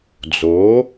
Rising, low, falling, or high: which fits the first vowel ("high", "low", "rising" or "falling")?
rising